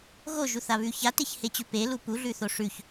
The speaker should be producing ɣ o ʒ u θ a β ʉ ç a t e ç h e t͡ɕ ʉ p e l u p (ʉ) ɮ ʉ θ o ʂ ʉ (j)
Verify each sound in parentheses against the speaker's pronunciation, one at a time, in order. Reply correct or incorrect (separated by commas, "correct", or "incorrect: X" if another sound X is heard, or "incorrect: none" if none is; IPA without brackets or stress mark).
incorrect: u, incorrect: ç